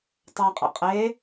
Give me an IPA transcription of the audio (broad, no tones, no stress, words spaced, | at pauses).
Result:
tˤaqʼɛ̰ qʼe